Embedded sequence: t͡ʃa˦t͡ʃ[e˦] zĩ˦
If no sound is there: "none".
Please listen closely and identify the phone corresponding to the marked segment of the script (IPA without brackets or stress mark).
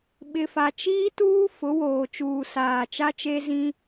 e˦